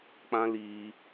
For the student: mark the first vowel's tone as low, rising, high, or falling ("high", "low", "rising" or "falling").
high